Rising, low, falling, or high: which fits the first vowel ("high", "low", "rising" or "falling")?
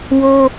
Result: high